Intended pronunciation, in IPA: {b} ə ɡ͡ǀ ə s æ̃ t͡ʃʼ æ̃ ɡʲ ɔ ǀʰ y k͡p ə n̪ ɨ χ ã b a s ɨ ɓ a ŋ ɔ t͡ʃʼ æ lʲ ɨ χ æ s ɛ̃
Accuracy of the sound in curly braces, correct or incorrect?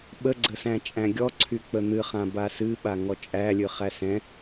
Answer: incorrect